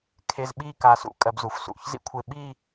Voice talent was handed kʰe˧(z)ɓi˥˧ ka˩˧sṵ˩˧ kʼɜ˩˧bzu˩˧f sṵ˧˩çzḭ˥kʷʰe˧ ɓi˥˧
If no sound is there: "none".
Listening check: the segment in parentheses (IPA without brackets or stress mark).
z